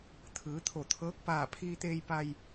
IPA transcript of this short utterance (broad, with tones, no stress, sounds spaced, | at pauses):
t̪ʰ ɯː˩˧ t̪ʰ o˧˩ t̪ʰ ɤː˧˥ k̚ p aː˧˩ pʰ iː˧ t̪ eː˧ j p a˧ j